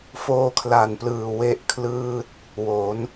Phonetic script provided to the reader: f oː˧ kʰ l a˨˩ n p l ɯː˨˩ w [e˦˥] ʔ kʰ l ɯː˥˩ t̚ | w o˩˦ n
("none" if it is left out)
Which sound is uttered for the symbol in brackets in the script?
e˥˩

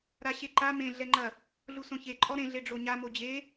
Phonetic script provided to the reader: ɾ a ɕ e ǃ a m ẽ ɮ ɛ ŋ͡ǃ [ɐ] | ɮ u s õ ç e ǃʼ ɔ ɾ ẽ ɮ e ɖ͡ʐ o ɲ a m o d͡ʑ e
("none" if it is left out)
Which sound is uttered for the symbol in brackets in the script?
ɐ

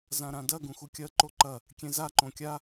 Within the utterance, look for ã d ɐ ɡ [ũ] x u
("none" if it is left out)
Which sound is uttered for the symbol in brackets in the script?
ũ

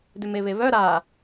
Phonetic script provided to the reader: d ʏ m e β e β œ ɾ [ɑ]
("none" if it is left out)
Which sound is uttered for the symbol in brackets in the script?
a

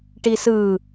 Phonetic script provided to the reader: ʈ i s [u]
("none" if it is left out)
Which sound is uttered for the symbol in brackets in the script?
ɯ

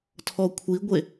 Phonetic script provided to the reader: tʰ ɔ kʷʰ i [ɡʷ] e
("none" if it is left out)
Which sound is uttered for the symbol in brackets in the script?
ɡʷ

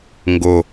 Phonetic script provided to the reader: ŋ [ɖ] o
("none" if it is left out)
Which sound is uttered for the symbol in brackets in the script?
ɡ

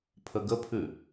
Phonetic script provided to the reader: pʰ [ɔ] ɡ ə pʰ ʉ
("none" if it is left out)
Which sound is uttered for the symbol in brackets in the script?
ə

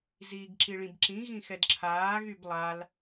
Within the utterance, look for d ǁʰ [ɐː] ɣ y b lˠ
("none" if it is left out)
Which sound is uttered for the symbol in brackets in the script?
aː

